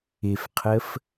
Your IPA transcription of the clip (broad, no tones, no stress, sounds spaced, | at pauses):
ɪ f qʰ ə f